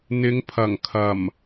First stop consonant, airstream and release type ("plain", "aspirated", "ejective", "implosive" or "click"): aspirated